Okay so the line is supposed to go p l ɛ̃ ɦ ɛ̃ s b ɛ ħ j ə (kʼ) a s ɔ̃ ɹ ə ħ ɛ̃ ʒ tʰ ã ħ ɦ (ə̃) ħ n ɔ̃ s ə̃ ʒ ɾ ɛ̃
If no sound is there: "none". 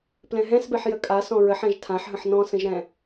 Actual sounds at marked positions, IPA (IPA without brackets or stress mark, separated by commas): kʼ, ə̃